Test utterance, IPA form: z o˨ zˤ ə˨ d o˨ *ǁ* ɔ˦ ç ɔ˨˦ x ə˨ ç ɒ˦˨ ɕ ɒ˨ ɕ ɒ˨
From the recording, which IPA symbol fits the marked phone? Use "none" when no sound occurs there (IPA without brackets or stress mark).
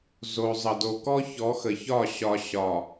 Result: k